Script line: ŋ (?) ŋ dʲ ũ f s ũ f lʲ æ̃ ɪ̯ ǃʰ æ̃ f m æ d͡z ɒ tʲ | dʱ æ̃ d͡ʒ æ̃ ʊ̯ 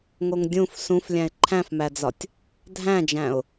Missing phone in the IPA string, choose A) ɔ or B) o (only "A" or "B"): B